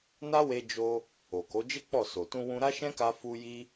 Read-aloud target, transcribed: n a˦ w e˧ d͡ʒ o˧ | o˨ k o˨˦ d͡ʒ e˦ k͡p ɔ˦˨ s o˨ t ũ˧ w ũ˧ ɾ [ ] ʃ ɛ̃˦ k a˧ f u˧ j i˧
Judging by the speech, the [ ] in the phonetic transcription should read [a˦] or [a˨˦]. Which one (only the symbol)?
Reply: a˦